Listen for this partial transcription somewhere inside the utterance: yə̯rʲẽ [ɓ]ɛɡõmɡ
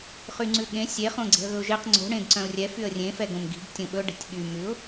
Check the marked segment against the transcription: incorrect: f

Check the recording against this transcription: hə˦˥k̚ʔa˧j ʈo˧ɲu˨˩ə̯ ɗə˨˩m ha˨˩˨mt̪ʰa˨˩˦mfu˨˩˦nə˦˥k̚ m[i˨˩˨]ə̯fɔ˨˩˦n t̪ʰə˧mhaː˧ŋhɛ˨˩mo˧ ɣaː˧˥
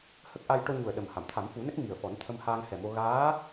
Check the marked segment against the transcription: incorrect: i˨˩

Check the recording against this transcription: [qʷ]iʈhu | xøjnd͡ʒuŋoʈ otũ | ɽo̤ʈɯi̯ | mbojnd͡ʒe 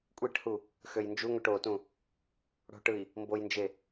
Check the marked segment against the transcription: incorrect: kʷʼ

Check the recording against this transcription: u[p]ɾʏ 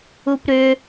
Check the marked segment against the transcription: correct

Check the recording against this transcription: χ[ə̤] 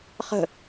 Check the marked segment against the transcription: correct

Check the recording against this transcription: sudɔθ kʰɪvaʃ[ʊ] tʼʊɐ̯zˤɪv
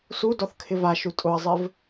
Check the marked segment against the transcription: incorrect: u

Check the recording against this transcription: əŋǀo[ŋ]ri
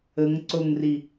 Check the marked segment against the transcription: correct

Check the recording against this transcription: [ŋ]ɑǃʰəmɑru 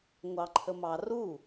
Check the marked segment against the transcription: incorrect: ŋʷ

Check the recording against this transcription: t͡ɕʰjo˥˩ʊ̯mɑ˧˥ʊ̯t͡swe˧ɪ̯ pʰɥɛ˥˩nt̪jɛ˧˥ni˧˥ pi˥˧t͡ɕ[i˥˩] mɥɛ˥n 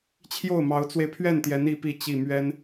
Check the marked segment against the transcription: correct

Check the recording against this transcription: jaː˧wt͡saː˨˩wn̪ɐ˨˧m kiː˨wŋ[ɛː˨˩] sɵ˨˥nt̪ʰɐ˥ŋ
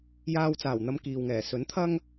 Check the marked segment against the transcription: correct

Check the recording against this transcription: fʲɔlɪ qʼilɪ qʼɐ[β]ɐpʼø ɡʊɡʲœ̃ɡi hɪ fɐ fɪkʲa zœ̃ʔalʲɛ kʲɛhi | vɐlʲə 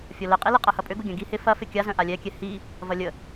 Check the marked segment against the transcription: incorrect: h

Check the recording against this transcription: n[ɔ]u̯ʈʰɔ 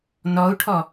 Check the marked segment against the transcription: correct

